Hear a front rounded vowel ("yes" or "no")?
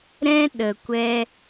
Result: no